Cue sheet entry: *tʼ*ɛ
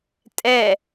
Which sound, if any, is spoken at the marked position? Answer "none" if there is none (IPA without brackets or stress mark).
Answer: tʼ